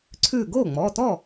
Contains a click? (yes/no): yes